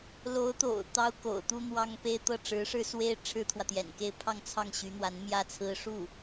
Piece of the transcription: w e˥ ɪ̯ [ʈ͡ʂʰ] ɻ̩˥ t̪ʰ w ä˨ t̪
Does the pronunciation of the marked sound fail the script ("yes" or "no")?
no